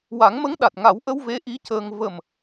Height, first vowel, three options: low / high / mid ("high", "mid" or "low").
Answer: low